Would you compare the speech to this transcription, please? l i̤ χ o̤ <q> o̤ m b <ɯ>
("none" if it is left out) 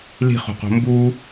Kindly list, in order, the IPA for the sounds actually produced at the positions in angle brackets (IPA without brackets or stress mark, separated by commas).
q, u